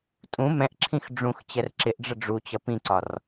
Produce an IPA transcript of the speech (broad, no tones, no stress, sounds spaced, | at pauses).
tʼ ũ m ɛ̃ ʔ ǁʰ ĩ x ɖ͡ʐ ũ x t͡ɕ ɛ r ǁ ɪ ʔ ɖ͡ʐ ə ɖ͡ʐ u t͡ɕ ʌ p ĩ ǀ ɒ r